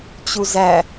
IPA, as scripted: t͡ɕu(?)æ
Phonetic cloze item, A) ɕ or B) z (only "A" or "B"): B